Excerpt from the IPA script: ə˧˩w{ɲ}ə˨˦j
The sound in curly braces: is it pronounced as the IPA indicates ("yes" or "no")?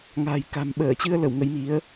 no